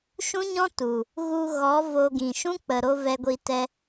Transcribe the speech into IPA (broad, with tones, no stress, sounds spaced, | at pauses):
ʃ ũ˦ ɲ ɔ̃˦ t u˨ | ɣ u˧ ɣ ɔ˨˦ v o˧ ɡ ĩ˨ ʃ ũ˦ k͡p ə˨ ɾ o˧ v ɛ˧ ɡʷ i˧ t ɛ˧